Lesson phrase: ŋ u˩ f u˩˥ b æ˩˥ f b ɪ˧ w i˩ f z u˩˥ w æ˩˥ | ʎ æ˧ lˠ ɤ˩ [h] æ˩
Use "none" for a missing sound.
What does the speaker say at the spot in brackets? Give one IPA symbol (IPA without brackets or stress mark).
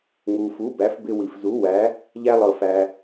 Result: f